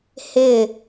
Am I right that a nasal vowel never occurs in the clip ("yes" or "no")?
yes